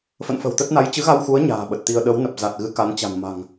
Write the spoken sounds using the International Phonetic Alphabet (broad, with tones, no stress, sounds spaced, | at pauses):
f ə̰˧˨ n f ə̤˨˩ w t̪ ə˦˥ t̚ n a˨˦ j t͡ɕ ɨ˨˦ ɣ a˧ w x u˨˦ ə̯ ɲ a̤ː˨˩ ɓ ə˨˩ t̚ t̪ i˧ ə̯ ɗ ə˨˦ w n ə˨˩ p̚ z a˨˩ t̚ ɣ ɨ˨˦ k a˨˦ n t͡ɕ a̤˨˩ n m a̤˨˩ ŋ